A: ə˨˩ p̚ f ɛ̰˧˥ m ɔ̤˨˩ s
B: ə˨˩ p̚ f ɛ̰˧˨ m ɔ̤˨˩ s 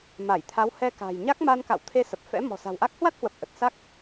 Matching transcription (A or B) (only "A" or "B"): A